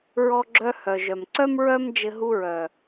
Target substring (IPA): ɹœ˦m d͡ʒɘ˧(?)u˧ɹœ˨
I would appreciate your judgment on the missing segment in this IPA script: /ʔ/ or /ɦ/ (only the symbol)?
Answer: ɦ